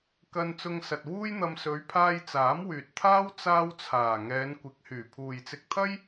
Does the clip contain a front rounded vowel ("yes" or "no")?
yes